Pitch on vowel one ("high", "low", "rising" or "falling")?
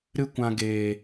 high